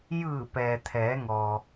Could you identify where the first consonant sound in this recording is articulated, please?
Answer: palatal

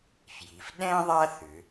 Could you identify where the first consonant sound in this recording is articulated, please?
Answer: labial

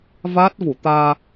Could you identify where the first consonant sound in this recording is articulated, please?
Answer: labial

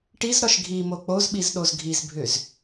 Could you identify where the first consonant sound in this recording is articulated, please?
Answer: retroflex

